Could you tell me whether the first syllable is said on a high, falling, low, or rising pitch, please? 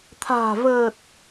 low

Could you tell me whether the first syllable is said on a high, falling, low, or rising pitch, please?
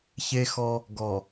high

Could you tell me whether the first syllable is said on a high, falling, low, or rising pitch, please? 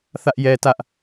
high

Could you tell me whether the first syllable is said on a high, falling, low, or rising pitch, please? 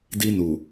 high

